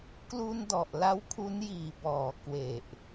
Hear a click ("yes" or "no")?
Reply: no